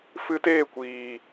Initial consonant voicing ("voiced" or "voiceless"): voiceless